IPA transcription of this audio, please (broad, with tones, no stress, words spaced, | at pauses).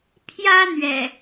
pʰjä˦n̪ɥɛ̰˨˩